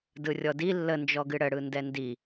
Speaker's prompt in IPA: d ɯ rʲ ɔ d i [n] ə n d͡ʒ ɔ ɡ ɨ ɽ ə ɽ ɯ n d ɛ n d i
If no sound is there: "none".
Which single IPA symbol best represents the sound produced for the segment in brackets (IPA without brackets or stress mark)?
lː